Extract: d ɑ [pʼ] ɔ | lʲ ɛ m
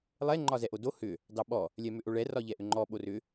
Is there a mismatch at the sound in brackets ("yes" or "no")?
yes